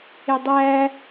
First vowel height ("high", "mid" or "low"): mid